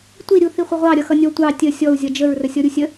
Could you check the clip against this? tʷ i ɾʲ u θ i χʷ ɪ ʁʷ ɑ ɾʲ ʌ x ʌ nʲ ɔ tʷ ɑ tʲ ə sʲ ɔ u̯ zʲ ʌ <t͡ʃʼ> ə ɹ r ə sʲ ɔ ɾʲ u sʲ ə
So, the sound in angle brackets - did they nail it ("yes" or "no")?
no